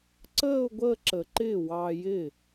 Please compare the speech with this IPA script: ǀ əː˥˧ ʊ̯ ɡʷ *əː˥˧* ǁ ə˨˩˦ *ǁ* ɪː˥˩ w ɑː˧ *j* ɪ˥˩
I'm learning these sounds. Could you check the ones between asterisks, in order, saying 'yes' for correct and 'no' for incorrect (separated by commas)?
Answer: yes, no, yes